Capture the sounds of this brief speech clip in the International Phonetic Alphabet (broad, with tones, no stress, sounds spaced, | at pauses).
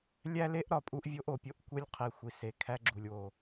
lʲ æ˦ l e˦ ʔ ɾ ɒ˨ pʼ u˦ ʔ vʲ o˦ ʔ o˨ pʲ o˦ ʔ kʷ e˦ lʲ qʰ i˨ xʷ i˨ s e˨ kʰ æ˦ ɡ͡ǁ u˨ lʲ w o˨